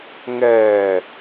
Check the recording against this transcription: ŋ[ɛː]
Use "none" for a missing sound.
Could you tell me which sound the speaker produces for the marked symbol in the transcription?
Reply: ɛː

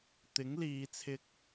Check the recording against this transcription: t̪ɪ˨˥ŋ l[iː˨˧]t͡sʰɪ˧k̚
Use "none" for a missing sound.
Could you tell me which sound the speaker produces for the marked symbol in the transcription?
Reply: iː˨˧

